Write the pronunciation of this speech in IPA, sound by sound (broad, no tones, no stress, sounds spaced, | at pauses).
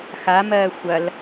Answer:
x a m ɜː xʷ ɐ l